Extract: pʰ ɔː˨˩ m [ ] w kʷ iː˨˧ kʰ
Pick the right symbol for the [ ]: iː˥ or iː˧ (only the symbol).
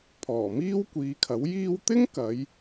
iː˥